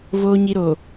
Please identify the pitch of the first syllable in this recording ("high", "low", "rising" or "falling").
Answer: low